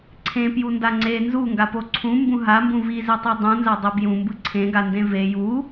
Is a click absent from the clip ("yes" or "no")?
no